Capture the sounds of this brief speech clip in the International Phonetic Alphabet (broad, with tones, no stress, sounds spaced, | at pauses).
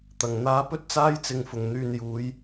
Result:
t̪ ɐ˨˩ ŋ n̪ aː˨˥ p ɵ˥ t̚ t͡s aː˥ j t͡s ɪ˨ ŋ f ʊ˨˩ ŋ n̪ yː˧ n j uː˨˥ j